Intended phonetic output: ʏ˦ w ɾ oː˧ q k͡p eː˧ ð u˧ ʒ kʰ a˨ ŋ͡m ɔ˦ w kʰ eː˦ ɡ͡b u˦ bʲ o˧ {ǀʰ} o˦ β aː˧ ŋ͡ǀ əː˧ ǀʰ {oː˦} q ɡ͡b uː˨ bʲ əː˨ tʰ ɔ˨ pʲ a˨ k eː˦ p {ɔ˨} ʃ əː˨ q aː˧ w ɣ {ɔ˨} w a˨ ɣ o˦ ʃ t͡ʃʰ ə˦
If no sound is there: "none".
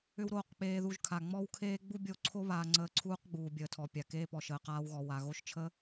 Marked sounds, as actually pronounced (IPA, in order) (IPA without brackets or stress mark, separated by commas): ǀʰ, uː˦, ɔ˨, ɔ˨